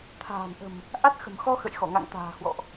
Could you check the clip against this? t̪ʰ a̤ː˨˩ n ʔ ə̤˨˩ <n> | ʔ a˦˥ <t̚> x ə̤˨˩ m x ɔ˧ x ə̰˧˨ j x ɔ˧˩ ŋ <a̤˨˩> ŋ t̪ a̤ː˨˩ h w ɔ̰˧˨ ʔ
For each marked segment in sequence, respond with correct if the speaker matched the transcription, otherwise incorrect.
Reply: incorrect: m, correct, incorrect: a̰˧˨

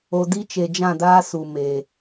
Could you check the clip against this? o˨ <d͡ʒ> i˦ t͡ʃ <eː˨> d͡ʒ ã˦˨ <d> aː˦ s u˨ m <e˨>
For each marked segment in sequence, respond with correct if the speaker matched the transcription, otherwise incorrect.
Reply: incorrect: d, incorrect: e˨, correct, correct

